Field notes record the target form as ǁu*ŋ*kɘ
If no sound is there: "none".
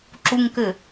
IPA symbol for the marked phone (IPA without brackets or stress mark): ŋ